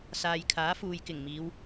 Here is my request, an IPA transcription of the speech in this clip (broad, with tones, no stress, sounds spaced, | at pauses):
s aː˨ j kʰ aː˨˥ f uː˨ j k ɪ˨˩ ŋ m iː˨˧ w